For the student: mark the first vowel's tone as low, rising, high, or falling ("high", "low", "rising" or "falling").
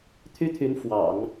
high